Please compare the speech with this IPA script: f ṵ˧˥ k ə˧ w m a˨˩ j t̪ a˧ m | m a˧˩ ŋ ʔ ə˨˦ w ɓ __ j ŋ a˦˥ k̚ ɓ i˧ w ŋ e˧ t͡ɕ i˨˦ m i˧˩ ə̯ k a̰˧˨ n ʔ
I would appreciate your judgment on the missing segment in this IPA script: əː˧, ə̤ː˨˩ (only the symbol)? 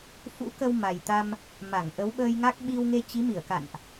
əː˧